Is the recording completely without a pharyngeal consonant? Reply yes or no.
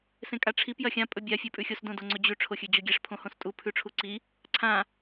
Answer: yes